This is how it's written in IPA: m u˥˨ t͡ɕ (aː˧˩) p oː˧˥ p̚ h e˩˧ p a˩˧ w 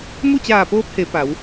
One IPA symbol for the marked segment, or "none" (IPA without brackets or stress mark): aː˧˩